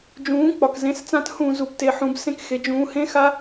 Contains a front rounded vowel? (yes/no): no